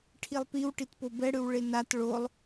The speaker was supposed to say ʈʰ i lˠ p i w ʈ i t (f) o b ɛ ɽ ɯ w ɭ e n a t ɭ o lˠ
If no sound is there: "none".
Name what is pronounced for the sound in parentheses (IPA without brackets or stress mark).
p